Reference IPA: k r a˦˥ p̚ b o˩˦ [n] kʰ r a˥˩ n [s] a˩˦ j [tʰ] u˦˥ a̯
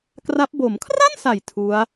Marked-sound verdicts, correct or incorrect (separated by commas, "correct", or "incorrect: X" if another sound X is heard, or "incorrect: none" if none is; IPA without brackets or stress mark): incorrect: m, correct, correct